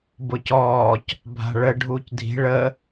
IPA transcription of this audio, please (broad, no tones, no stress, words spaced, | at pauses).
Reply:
bʊcɔːc | bʱa̤ɭə ɖʱuːcdʱi̤ ɭə